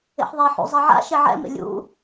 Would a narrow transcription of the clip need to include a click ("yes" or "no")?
no